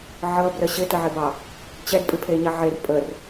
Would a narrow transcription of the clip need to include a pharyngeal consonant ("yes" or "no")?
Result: yes